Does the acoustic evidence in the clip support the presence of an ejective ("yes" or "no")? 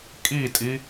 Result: yes